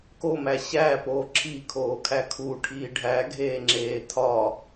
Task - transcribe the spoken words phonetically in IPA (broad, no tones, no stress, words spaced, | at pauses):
komæ ɕæːpoː ǁʰikʰoːkʰæ kʰuʈʰiː ɖʱæɡʱeːŋ͡ǁeː tʰɒ